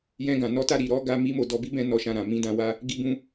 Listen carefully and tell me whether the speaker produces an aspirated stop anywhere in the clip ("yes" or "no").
no